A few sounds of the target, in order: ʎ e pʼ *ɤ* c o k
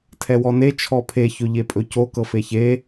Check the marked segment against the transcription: incorrect: ɵ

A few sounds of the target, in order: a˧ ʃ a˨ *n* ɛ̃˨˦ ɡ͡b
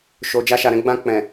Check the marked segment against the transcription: incorrect: ɾ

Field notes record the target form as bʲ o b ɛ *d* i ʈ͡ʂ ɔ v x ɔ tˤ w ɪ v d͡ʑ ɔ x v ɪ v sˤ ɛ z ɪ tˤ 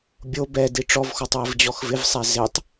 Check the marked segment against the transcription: correct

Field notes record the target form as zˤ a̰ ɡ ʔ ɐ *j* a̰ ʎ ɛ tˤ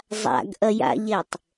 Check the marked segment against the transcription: correct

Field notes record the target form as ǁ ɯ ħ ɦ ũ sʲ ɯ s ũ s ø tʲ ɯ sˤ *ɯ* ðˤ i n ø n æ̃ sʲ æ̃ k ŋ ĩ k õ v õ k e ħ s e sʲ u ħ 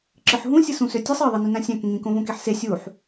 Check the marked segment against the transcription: correct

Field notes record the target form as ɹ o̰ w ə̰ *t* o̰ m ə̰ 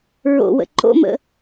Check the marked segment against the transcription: incorrect: ǃ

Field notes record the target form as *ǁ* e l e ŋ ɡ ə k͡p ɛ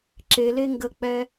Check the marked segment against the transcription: correct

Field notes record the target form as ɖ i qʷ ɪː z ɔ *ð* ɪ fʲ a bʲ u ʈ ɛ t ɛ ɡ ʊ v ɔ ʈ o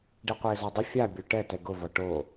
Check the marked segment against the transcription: incorrect: dˤ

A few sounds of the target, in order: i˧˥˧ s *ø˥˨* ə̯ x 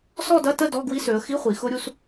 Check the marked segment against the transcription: incorrect: ø˩˧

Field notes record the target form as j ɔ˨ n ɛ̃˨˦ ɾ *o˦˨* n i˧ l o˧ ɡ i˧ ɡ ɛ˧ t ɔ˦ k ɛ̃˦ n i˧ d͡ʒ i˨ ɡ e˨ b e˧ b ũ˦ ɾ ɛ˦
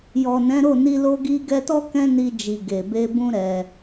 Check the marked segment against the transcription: correct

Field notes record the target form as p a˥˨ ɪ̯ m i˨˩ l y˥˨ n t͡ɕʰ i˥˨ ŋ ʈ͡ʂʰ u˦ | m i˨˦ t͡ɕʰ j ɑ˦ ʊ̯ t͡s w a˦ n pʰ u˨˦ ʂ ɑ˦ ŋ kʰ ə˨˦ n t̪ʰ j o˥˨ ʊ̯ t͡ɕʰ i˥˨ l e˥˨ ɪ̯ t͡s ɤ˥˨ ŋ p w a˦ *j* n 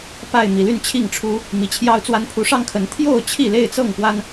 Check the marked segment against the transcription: incorrect: none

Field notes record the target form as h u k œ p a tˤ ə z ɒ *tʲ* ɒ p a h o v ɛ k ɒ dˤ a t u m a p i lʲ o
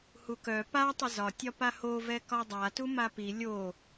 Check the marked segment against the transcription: correct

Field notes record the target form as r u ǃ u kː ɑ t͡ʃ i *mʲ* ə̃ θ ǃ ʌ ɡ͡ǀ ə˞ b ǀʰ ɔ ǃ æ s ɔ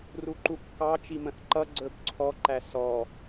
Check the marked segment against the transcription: incorrect: m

